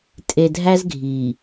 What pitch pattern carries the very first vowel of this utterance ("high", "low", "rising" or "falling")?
low